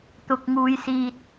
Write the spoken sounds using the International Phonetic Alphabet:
t̪ ʊ˨ k̚ ŋ uː˨ j s iː˨ t̚

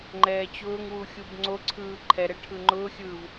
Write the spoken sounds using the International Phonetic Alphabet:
ŋ͡ǃ ɛː t͡ɕ ʊː ŋ w u xʲ u b ŋ͡ǀ o ǀʰ ɯː ǃʰ ɛ ɾ ɛ ʈʰ ɯ ŋ͡ǃ ʊː xʲ ɯː v

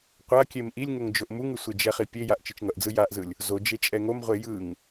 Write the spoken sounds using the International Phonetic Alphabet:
qʷ a kʲ e m ʔ i lʲ ŋ o ŋ d͡ʒ o ʔ m u ŋ ɯ sʷ e d͡ʒ ɛ χ i pʲ e j a ʔ t͡ʃ ɯ t͡ʃ ŋ ʌ ʔ d͡z ɯ j a ʔ z ɯ lʲ | z o d͡ʒ e t͡ʃʼ ɛ ŋ o m ʁʷ e j ɯ ŋ

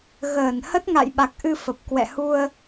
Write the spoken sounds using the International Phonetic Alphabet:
ɣ əː˧˩ n h ə˦˥ t̚ ŋ a̰˧˨ j ɓ a˨˩ k̚ ʔ ɨ˧ f ə˨˩ p̚ k w ɛ̰˧˨ h u˧ ə̯

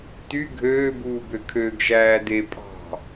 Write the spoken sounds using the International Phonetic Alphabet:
t y ɡʱ øː b uː b ø kʰ ø ɡ ʒ æː d e pʼ ɑ̤

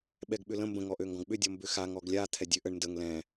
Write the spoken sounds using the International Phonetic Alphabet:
ɓ ɛ ɡ ɓ ʏ l ə̃ m b ə̃ ŋ ɔ ʔ ø ŋ ɡ ɔ̃ ɡ ɓ ʏ dʲ ɔ m b ʏ x a ŋ ɔ ɡ lʲ a t̪ʰ ɛ dʲ ø ʔ ə ɳ n d ə ŋ l ɛ̃

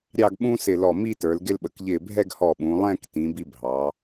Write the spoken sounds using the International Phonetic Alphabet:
ɾʲ ɑ˥˧ ɡ ɓ ũ˥ s ɪ˧˩ l ɔ˧˩ m i˥˧ t ə˞˩˧ l ɡ ɪ˧ l ɓ ə˩˧ k ʎ ɪː˧˩ bʱ ɛ˥˧ ɡ h ɔ˧˩ ɓ ũ˩˧ lˠ ɛ̃ː˥˧ k t ĩ˩˧ b i˧ bʱ ɑ˩˧

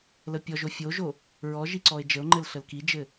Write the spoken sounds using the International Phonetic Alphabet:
l ə pʲ ɔ ʒ o fʲ o ʒ o | ɹ ɔ ʒ i ǀ ɔ e̯ d͡ʒ ə o̯ ŋ͡ǃ ɘ l ɬ ə l k i d͡ʒ ɘ

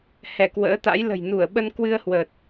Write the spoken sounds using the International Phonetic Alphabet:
h ɛ˧˩ k w ə̰ː˧˥ t̪ a̰˧˥ j l ə̤˨˩ j n u˧˩ ə̯ ɓ ə˧ n k w ɨ˧ ə̯ h w əː˨˩ t̚

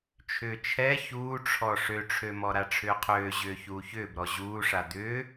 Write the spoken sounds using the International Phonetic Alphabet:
t͡ʃʰ ʏː t͡ʃʰ ɛ ç uː ʈ͡ʂʰ ɔ ʂ ø ʈ͡ʂʰ ø m ɔ ɾ a ʈ͡ʂʰ ʏː qʰ øː ʑ ʏː ç uː ç ʏː b ɾ ɔ ʑ uː ʂ a d̪ ʏː

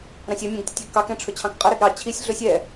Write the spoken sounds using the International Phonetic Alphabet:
ɾ ɑ̃ sʲ ɛ mʲ ɛ̃ ɡ tʲ ə tʲ ɛ ɡ k ɑ k ɛ̃ ʈ͡ʂʰ ɵ t͡ɕʰ ɑ̃ k qʼ ə ɾ ɛ ɡ ɾ ɑ t͡ɕʰ i sʲ ɮ ɵ sʲ ɛ

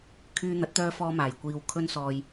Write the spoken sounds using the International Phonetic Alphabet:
kʰ yː˧ n̪ ɐ˨˥ t̚ t̪ œː˧ f ɔː˧ m aː˨˩ j kʷ iː˨ w kʰ ɵ˧ n s ɔː˨ j

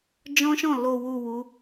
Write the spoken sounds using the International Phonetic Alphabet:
d͡ʒ ɔ̃˦ ʃ ɔ̃˦˨ l o˨ w u˨ w u˨˦

